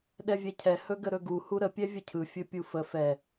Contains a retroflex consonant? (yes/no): no